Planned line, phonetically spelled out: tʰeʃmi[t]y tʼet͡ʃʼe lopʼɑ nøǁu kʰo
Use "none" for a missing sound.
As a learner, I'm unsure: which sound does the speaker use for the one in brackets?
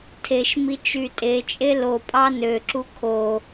t͡ʃ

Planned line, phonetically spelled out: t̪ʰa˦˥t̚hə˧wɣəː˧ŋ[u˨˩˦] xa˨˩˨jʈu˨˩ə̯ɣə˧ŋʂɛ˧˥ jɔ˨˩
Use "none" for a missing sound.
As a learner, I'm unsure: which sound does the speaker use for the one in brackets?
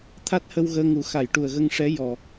u˨˩˦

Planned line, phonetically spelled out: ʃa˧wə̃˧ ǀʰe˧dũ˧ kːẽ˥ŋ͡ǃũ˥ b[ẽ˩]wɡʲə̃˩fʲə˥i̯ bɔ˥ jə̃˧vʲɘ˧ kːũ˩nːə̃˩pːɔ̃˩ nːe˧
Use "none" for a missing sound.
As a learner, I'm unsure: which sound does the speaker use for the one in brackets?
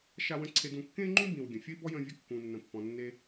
ĩ˩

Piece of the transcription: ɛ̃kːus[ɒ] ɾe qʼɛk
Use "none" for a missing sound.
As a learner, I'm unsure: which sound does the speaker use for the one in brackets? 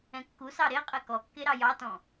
ɑ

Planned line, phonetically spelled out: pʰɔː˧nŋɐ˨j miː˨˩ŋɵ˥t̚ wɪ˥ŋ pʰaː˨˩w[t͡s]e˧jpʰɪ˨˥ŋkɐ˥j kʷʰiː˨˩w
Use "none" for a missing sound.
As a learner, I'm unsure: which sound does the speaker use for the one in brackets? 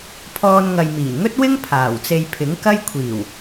t͡s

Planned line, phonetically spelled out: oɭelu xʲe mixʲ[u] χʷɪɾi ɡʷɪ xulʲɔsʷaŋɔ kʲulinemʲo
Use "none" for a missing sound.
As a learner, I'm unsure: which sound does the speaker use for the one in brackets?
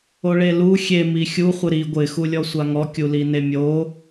u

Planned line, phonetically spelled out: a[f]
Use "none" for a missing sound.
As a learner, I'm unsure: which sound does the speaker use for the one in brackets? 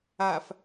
f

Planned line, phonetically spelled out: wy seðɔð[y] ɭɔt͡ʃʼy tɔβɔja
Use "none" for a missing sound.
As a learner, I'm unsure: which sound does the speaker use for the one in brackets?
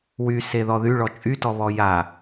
y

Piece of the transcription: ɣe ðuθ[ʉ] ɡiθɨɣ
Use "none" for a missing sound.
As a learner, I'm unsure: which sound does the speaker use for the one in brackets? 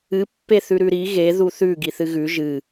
ʉ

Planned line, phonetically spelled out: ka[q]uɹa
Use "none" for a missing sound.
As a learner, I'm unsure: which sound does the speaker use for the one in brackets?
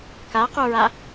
q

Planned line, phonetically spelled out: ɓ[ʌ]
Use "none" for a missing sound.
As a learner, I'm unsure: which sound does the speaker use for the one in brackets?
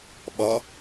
ʌ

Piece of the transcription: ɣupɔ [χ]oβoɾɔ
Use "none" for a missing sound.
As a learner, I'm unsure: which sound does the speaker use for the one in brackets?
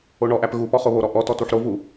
χ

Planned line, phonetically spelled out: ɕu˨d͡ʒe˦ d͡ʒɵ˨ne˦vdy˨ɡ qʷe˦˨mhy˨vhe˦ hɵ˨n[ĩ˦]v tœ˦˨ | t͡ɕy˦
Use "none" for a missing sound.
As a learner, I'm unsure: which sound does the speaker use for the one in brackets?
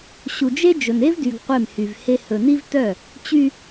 i˦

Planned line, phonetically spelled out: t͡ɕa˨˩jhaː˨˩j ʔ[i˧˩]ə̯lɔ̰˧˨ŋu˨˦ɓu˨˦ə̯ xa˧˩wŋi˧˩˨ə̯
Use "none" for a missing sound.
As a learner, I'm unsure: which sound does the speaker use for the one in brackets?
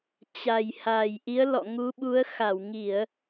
i˨˦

